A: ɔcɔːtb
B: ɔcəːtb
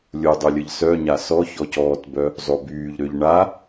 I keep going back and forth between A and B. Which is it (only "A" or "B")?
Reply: A